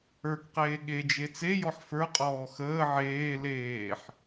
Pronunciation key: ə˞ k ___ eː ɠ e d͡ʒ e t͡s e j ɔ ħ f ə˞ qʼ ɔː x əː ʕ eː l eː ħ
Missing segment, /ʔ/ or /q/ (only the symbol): q